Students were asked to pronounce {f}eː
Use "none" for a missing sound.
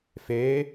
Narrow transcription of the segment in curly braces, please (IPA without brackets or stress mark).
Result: f